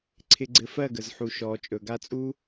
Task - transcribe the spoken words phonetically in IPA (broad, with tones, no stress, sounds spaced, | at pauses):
ǀʰ ɪ˨ ɡ͡ǀ ɘ˨ f ɜ˦˨ ɡ ə˨ z ħ u˨ ʃ ɔː˨ t͡ʃʼ ɵ˨ ɡ a˧ t͡sʼ uː˦